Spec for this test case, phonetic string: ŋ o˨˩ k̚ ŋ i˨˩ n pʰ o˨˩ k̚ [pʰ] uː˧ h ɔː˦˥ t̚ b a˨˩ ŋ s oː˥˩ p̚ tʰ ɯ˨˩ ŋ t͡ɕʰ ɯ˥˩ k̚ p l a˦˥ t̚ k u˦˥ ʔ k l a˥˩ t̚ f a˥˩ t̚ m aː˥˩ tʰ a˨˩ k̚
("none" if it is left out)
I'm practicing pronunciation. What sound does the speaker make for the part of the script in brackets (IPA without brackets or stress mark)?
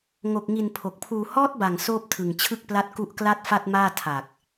pʰ